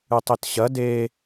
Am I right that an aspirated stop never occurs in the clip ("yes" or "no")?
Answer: yes